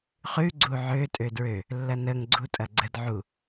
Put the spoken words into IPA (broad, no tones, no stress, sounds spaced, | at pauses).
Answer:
χ ʉ ɡ͡ǀ u ʕ ø tʼ ø d ɹ ø | lː ɐ n ə ŋ ɡ͡ǀ u tʼ ɐ ɡ͡ǀ ə d ʕ u